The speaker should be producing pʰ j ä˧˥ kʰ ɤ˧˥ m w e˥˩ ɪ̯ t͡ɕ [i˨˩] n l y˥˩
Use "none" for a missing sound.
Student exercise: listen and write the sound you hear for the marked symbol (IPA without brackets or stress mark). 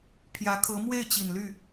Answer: i˨˩